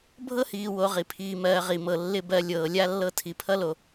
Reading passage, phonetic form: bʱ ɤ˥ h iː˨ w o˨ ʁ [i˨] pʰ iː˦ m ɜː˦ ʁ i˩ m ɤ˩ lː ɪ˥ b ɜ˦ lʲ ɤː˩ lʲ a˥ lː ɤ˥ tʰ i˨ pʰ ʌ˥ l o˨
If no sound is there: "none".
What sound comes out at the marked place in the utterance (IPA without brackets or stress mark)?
i˨